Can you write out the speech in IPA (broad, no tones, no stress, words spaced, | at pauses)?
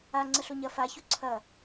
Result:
aŋ͡ǀəɬo ɲɐ façu ǀʰɐ